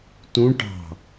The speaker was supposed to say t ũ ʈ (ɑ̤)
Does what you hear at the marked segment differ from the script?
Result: no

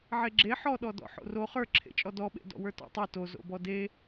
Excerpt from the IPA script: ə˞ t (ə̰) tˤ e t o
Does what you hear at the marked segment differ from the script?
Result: yes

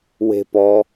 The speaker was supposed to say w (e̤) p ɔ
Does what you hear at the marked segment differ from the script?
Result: no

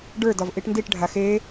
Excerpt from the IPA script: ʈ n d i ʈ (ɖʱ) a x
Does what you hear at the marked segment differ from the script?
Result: no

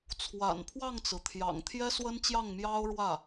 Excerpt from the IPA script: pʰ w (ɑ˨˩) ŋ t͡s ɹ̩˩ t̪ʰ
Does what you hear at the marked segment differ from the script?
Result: yes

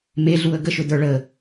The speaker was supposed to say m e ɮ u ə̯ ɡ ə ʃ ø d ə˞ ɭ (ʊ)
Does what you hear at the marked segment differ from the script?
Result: yes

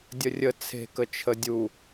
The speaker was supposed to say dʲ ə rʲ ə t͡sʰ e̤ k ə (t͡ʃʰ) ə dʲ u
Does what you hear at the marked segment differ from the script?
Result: no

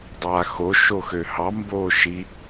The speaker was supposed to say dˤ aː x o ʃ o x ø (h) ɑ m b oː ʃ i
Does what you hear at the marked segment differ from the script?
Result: no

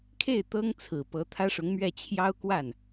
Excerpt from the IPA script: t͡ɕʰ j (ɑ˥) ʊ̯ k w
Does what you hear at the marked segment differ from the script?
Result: no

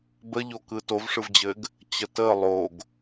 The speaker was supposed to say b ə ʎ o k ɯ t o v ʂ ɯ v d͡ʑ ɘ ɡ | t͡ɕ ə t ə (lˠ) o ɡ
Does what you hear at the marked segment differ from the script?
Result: no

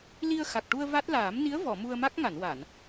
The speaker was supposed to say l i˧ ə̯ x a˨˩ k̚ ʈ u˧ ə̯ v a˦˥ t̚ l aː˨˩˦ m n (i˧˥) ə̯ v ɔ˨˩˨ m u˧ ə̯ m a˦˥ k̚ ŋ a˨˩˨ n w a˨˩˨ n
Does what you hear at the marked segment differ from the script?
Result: no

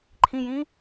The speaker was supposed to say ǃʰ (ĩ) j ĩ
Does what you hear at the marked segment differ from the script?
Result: no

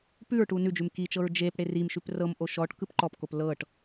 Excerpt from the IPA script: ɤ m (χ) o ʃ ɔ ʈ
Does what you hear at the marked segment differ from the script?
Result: yes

